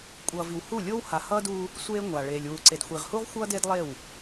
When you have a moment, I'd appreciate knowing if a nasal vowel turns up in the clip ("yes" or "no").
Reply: no